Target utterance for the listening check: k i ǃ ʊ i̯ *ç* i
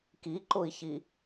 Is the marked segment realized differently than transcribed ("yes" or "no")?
no